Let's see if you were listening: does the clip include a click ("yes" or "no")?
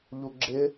yes